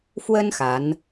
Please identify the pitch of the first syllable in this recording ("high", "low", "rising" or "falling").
high